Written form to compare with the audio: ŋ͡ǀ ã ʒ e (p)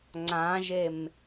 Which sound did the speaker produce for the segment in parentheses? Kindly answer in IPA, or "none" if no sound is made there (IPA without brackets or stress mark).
m